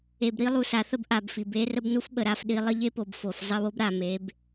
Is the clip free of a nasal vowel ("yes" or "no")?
yes